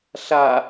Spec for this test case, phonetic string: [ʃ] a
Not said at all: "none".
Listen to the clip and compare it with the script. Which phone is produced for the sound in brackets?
ɬ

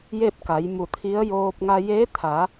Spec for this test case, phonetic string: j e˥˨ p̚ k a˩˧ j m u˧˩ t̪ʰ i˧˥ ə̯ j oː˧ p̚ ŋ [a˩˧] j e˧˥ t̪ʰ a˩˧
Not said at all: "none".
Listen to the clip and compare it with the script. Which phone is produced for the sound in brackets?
a˧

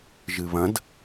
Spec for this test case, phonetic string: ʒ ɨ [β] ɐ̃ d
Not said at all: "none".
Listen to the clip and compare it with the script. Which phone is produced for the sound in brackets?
β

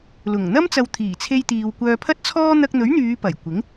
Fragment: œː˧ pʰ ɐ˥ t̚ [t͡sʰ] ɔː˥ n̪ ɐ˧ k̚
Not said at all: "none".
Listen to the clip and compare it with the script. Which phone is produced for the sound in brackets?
t͡sʰ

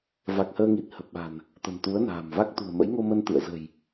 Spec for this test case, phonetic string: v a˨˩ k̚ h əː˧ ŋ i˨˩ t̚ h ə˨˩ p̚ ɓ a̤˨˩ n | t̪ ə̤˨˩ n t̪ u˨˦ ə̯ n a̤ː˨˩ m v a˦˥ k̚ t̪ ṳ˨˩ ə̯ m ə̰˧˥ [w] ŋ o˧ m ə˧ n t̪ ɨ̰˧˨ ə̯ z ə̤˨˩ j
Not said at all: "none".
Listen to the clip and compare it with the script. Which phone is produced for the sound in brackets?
j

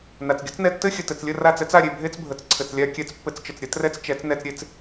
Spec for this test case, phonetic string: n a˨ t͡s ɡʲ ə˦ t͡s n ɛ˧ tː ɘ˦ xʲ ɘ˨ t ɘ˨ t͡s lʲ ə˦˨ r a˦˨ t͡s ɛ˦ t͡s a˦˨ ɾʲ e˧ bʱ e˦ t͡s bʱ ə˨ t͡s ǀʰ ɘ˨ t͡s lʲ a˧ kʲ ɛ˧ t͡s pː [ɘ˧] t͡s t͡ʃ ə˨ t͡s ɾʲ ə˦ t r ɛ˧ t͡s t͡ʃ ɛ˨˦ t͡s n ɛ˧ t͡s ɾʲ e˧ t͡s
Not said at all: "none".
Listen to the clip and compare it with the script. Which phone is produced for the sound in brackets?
ɘ˧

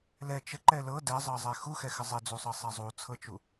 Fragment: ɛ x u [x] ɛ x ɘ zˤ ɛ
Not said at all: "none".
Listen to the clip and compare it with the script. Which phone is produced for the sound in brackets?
x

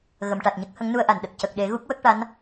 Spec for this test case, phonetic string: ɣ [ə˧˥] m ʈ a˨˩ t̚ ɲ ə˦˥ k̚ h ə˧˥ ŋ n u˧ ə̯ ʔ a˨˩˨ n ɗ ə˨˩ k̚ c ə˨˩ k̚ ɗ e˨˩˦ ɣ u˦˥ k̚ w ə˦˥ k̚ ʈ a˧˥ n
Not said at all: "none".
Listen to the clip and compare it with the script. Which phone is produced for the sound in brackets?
ə˨˩˨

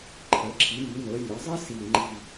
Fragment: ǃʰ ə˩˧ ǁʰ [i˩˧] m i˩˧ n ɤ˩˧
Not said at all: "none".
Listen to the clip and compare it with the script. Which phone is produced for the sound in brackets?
i˩˧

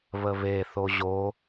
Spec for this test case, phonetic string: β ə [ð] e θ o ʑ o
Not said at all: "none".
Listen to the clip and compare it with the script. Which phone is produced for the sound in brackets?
β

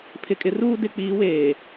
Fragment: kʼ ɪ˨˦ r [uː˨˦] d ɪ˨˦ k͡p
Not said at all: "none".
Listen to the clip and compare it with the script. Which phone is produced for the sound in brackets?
uː˦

